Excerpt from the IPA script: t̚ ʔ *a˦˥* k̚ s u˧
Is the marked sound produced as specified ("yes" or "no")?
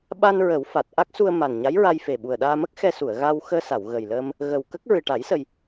yes